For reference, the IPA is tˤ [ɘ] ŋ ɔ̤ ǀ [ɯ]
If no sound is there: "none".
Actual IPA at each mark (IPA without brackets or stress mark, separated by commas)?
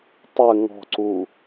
ɘ, u